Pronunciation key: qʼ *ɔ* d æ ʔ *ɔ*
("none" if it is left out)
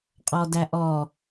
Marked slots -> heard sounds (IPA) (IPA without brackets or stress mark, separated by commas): ɔ, ɔ